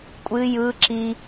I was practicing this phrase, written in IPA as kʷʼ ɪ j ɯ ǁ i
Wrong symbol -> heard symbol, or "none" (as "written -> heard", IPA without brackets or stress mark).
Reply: ɪ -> ɨ